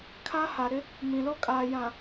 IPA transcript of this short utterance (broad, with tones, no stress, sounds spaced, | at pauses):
kʰ a˦ h a˨ ɾ ɪ˦ | m ĩ˨ l o˦ kʼ aː˨ j ã˨